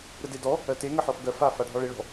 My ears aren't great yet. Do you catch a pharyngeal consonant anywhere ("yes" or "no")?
yes